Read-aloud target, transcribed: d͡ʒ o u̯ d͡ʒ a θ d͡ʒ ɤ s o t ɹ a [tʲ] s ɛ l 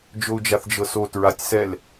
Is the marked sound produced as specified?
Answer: yes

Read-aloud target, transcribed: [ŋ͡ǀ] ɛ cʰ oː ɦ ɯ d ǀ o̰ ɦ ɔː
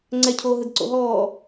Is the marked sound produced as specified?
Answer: yes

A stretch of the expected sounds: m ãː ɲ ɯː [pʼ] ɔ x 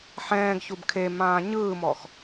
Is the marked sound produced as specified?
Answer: no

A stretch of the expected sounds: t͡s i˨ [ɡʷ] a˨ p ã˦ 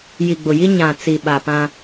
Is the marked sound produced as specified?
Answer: no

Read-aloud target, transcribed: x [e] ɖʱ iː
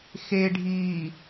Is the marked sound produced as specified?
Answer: yes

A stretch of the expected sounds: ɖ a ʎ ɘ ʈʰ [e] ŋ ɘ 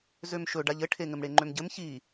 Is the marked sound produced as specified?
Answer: yes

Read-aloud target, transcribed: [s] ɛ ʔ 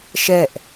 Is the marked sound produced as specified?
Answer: no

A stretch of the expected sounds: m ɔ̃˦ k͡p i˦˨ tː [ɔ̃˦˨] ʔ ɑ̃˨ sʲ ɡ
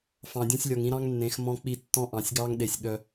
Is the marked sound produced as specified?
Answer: no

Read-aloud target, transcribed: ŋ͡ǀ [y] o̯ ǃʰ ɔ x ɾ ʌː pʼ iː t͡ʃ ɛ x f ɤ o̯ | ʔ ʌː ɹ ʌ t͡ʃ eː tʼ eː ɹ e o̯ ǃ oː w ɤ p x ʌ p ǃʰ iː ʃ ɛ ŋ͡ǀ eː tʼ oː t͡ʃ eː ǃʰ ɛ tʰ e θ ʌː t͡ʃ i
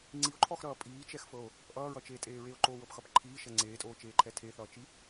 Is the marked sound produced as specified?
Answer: no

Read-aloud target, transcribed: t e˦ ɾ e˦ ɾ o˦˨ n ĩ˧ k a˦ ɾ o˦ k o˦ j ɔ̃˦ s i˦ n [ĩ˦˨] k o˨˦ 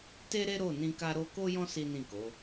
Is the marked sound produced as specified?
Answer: yes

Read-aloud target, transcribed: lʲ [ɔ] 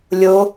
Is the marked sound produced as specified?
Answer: no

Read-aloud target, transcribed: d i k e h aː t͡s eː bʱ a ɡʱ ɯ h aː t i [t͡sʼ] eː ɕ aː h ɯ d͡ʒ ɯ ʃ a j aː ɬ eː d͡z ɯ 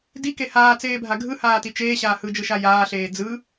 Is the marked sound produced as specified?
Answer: no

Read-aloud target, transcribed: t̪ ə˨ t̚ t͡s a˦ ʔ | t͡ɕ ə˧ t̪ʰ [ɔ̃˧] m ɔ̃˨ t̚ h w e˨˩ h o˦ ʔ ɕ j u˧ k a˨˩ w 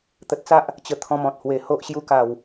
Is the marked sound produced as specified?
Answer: yes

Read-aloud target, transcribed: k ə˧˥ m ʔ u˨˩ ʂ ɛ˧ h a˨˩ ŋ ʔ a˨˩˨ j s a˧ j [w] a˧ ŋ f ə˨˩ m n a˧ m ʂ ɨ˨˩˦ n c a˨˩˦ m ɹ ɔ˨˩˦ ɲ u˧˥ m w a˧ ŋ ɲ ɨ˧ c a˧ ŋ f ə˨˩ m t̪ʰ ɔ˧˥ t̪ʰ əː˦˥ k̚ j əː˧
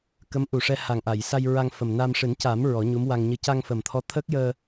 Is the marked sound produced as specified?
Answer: no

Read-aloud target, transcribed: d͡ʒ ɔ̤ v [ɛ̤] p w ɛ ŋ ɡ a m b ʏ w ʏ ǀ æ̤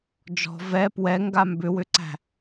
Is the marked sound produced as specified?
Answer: no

